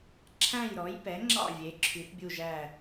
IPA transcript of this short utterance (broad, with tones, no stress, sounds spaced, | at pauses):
ǁʰ æ̃˥˨ j ɾ ɔ˩˥ j p ɛ˩˥ ŋ͡ǁ ɑ̰˥˨ vʲ e˩˥ ǁʰ y˩˥ θ bʲ u˥˨ ʒ æ˥˨